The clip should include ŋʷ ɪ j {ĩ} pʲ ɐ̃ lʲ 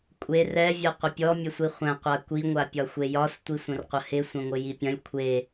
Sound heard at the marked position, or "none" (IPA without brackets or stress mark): i